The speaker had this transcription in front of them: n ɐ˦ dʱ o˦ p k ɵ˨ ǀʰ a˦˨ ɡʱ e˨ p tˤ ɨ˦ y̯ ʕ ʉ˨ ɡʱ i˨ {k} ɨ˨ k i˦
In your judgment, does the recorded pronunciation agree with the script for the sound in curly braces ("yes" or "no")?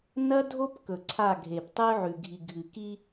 no